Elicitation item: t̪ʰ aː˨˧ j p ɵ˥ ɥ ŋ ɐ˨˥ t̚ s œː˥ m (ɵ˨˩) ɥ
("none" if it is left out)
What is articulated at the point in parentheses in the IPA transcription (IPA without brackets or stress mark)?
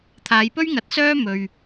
ɵ˧